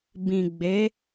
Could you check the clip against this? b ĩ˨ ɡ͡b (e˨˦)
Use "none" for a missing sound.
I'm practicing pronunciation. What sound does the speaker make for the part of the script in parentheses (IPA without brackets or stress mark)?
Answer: e˨˦